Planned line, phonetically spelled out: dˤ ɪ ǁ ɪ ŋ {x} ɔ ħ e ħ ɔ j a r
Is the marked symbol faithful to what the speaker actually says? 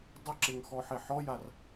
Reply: yes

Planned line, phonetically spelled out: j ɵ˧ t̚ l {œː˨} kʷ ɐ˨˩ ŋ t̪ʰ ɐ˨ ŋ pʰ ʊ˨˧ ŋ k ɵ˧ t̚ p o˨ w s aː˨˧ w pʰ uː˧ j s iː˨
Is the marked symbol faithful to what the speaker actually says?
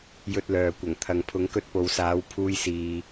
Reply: yes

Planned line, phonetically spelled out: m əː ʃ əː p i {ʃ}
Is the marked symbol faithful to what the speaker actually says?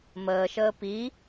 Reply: no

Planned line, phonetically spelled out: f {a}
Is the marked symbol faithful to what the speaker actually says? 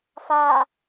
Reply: yes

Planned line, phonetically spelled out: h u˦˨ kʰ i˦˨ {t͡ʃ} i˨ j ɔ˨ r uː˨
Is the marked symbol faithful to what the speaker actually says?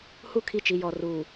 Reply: yes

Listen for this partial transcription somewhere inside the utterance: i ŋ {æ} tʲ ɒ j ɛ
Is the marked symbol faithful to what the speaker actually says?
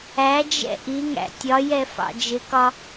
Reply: no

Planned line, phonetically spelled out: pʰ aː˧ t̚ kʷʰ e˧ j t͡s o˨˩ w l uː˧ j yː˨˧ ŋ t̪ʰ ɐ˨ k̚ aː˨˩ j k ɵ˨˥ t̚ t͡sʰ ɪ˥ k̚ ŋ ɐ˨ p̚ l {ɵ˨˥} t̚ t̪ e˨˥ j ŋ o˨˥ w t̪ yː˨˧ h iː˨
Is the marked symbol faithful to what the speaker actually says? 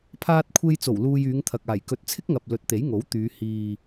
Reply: yes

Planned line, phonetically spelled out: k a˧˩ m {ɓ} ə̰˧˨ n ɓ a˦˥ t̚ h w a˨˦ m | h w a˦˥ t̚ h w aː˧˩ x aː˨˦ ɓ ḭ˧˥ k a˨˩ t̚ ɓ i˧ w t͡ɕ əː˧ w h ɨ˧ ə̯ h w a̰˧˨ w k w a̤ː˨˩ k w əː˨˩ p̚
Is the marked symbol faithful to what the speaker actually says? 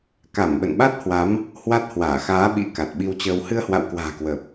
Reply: yes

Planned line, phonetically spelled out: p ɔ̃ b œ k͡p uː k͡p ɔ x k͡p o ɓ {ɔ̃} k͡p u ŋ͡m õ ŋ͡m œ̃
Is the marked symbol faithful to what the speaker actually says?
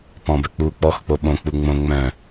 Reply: no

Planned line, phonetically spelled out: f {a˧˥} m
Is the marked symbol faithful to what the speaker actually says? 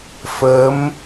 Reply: no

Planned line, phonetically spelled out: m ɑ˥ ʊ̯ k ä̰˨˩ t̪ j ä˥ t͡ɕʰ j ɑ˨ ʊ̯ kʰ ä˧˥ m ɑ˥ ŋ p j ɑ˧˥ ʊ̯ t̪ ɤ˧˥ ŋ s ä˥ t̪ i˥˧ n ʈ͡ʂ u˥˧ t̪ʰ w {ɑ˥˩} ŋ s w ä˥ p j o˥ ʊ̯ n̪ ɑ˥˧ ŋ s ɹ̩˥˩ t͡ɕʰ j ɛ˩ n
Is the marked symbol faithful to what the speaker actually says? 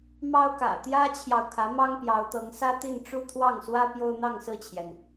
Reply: yes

